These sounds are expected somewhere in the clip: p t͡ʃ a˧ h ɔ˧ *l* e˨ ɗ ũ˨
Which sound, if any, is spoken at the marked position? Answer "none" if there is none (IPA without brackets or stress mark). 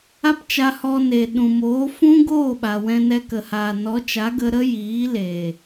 n